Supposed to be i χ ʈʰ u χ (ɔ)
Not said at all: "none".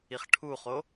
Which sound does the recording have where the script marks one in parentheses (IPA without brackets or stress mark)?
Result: o